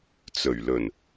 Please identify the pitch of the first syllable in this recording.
low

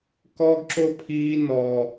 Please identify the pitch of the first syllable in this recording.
high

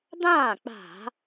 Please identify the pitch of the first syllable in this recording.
falling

